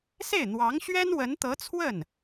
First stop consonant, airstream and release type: plain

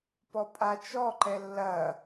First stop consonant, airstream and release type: plain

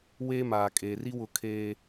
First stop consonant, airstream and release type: ejective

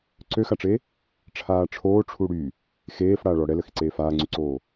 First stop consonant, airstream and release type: click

